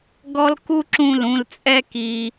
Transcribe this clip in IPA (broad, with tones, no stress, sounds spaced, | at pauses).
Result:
ɡ ɔ˦ l k u˦ ǁ ũ˦˨ l ũ˧ l t͡sʼ ɛ˦ k i˧